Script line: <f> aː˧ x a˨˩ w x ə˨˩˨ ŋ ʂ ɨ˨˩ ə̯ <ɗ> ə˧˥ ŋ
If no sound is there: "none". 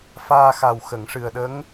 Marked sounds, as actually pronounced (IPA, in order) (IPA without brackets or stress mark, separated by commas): f, ɗ